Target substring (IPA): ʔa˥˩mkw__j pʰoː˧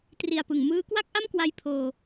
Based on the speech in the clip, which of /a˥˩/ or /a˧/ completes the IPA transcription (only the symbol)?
a˧